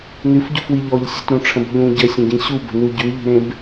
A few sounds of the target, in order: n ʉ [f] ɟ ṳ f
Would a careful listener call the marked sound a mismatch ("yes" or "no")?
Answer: no